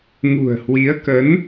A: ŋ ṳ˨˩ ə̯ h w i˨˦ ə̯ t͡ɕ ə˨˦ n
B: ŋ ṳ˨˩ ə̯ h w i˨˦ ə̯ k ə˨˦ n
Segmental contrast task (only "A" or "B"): B